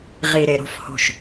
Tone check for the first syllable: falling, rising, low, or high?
low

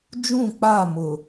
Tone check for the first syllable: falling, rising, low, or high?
falling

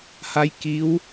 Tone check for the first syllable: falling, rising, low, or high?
rising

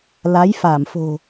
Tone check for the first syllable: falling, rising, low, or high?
rising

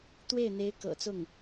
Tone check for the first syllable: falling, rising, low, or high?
falling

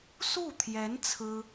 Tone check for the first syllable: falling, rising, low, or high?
falling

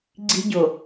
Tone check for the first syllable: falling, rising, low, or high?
high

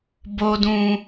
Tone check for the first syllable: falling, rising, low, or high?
low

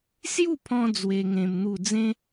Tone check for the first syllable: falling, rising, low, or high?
falling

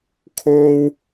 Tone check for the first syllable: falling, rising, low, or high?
high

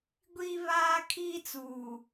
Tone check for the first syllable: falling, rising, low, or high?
high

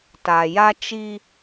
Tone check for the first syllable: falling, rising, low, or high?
low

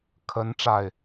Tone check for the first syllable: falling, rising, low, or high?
rising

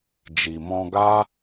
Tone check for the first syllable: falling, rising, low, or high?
low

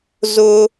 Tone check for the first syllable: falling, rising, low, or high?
high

